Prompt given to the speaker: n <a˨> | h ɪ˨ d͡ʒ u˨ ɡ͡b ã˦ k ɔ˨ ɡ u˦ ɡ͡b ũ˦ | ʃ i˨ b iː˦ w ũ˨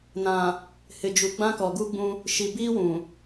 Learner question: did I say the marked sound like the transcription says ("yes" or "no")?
no